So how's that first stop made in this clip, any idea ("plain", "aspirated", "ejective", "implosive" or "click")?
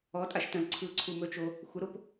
ejective